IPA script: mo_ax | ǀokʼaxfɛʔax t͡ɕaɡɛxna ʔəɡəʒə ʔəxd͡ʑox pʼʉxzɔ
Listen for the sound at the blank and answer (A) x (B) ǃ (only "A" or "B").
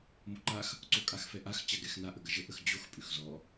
B